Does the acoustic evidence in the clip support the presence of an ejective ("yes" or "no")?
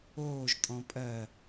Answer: yes